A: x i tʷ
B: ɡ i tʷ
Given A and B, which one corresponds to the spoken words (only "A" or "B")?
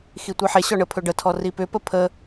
A